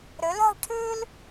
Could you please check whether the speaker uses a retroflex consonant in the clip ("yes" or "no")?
yes